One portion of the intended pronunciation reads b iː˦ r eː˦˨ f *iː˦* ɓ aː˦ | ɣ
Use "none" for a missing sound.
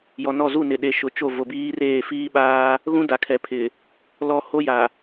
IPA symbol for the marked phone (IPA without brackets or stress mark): iː˦